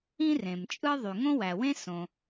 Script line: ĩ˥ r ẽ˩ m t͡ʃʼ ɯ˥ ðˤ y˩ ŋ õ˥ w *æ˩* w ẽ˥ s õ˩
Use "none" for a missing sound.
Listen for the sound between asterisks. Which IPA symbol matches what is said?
æ˩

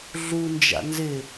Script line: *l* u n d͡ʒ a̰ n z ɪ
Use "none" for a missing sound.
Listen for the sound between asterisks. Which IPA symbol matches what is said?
ɮ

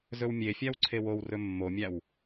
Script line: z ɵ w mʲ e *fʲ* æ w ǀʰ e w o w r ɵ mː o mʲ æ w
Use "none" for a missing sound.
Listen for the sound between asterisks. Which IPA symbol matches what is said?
fʲ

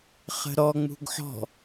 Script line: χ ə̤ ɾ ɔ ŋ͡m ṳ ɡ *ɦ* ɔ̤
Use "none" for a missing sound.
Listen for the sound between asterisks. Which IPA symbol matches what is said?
ħ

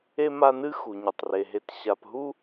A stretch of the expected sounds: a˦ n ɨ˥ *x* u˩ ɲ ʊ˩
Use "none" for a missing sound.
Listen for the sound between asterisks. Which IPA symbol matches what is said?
x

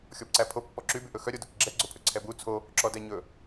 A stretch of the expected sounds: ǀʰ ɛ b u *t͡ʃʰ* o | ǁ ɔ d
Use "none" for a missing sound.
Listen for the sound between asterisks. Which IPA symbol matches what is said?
t͡sʰ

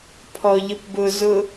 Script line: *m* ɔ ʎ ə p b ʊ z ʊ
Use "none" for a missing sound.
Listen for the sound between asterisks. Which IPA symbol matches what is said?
pʰ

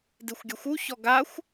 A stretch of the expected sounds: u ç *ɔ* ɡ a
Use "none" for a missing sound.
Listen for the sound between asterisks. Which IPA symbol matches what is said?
ɔ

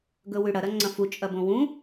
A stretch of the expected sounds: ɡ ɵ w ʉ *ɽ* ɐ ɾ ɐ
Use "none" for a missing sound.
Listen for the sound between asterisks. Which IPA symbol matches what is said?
ɽ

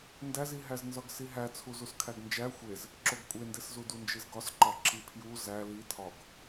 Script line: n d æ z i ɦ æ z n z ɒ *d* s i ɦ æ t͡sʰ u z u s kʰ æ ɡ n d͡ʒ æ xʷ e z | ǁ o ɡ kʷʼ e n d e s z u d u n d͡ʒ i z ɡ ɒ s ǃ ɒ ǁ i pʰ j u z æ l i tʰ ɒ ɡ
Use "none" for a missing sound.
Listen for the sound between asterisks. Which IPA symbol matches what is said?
ɡ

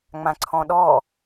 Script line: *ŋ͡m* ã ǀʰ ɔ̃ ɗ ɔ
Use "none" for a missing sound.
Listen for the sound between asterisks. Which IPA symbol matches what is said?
ŋ͡m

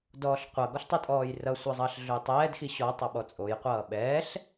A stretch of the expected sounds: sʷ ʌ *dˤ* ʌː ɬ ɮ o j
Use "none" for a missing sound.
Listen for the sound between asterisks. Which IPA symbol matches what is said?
zˤ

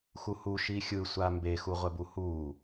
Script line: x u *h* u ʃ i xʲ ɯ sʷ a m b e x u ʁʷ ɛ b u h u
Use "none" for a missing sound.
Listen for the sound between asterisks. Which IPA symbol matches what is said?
h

